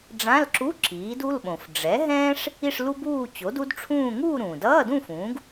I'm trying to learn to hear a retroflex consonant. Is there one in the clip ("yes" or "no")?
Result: yes